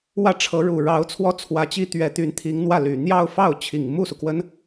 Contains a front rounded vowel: yes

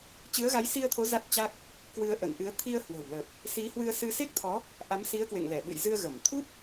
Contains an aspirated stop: yes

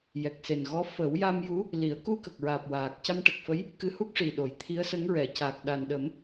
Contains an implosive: yes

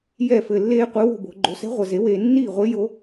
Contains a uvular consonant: yes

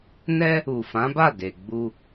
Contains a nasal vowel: yes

